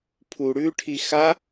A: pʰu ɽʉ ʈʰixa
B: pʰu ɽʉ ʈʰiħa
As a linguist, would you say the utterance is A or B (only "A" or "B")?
A